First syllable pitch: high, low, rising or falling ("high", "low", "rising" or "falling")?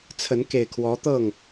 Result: rising